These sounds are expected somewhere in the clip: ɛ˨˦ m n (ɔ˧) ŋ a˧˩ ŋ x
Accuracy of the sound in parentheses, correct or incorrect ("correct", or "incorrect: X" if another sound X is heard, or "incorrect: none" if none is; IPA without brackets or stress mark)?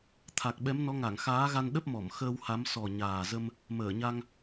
incorrect: ɔ˨˦